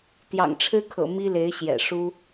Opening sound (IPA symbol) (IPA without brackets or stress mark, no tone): t̪